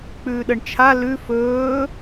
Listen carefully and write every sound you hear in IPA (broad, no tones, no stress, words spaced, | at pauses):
k͡pʉːɗəɳt͡ʃʰa lʉ fɵː